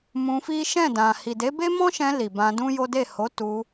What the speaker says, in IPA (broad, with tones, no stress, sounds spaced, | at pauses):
m ũ˧ f i˦ ʃ ɛ̃˦˨ d ã˨ h i˨ d e˨˦ b e˦ m ɔ̃˦ ʃ ɛ̃˧ l i˨ b ã˧ d ũ˦ j o˦ d e˦˨ h o˨˦ t u˧